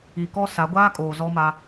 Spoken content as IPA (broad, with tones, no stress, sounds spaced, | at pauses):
i˨ k ɔ˦ s a˨˦ ɡʷ aː˦ kʼ oː˨ z ɔ˦ m a˦